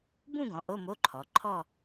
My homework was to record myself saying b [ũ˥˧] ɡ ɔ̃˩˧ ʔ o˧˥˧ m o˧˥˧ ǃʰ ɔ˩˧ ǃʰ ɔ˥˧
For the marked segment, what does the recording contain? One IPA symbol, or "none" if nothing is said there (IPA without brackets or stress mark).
ũ˥˧